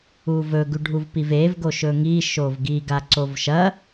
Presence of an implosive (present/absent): absent